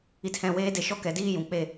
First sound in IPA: i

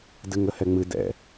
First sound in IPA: d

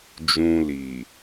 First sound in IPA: d͡ʒ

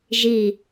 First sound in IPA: ʒ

